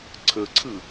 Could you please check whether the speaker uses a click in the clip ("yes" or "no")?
yes